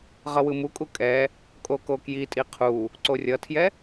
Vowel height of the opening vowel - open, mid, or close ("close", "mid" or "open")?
mid